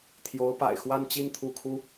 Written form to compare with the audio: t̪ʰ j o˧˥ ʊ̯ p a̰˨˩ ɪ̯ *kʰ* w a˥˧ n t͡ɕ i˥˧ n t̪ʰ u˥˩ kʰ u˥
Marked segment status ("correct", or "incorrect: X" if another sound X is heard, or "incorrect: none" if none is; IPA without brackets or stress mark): incorrect: x